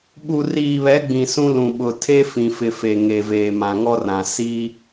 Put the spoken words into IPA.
ɓu˨ riː˨βɛ˨˦ɡ͡bĩ˨ sũ˦ lũ˨ɓʊ˨ tʰe˦fĩ˨fɪ˨ fe˨ŋe˨veː˨ mã˨ŋɔ˦rã˨ si˦

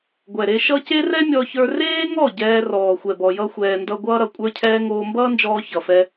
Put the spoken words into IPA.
ɡʷɛ˨ɾe˧ʃʌ˦ ce˦rɛ˦mʲɔ˧çə˞˧ reː˦ŋɔ˦˨ ɟɛː˧rɔː˨xʷɛ˨ bɔ˧jʌ˦xʷɛː˧ndʌ˦ ɡʷʌː˦ɾʌ˨kʷʼə˞˦cʰɛː˦ ŋoː˧mbʌː˦nd͡ʒɔː˧ çʌ˨fɛ˧

